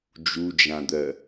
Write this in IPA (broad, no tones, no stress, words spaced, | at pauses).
d͡ʒud͡ʒãd̪ɜ